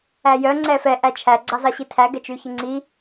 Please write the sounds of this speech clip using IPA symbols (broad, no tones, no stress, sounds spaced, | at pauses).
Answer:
æ j œ ŋ͡ǀ ɛ f ɛ ʔ æ t͡ʃʰ æ ɡ͡ǀ ɑ z ɑ ɕ i tʰ æ ɡ ɛ t͡ʃ ʉ ç e ŋ͡ǀ i